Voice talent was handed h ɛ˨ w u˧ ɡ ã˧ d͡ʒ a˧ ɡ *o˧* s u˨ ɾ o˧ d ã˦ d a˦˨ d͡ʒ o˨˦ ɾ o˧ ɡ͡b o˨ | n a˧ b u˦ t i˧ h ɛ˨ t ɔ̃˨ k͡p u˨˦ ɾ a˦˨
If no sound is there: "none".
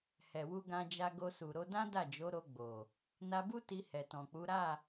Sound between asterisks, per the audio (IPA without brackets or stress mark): o˧